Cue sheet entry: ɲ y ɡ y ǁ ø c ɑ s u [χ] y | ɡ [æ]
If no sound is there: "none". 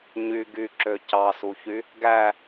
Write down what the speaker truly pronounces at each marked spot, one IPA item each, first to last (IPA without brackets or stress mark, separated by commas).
ç, æ